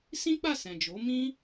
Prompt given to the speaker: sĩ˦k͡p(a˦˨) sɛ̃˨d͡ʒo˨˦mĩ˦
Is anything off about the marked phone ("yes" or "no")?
no